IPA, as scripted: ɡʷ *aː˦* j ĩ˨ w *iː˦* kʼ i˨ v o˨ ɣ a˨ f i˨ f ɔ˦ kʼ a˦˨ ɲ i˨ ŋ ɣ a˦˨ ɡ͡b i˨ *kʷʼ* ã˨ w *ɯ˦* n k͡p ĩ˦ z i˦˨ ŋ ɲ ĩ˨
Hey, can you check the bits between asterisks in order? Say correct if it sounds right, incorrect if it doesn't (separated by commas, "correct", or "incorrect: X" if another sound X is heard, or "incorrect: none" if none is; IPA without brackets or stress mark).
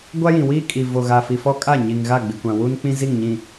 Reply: incorrect: a˦, correct, incorrect: kʷ, incorrect: u˦